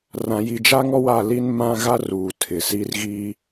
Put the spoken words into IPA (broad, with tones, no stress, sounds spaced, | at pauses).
r ã˨ j i˨ d͡ʒ a˦ ŋ ɔ˦ w a˦˨ l i˦ n m ã˦ ɣ a˦ r uː˨ tʰ ɪ˨ s i˦ r ɣ iː˦